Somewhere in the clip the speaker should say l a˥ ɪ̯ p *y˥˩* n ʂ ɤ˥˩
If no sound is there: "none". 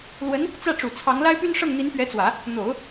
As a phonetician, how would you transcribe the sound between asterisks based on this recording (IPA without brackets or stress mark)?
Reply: y˥